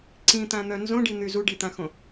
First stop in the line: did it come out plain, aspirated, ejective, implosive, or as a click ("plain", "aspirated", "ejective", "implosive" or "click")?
click